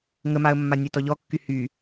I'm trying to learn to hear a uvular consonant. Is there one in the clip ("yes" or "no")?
no